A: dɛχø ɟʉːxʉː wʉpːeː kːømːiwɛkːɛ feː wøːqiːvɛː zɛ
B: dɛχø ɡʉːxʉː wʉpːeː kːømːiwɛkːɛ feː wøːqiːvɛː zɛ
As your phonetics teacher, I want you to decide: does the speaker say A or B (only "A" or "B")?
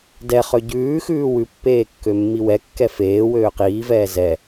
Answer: A